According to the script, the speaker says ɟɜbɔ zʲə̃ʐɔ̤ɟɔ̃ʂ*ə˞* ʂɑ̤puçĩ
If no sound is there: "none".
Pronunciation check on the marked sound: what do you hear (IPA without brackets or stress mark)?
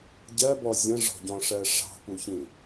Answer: ɜ